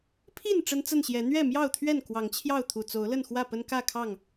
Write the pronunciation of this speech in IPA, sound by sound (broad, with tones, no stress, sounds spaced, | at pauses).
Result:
pʰ i˥˨ n ʈ͡ʂ ə˦ n t͡s ə˥˨ n ɕ j ɛ˨˦ n̪ ɥ ɛ˥˨ m j ɑ˥˨ ʊ̯ t̪ʰ ɥ ɛ˥˨ n k w ɑ˨˦ ŋ t͡ɕʰ j ɑ˥˨ ʊ̯ t̪ʰ u˨˩ t͡s o˨˦ ʊ̯ l ə˥˨ n x w ä˥˨ p ə˦ n k ä˥˨ kʰ ɑ˥˨ ŋ